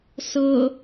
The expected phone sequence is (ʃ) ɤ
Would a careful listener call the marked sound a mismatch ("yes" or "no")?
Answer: yes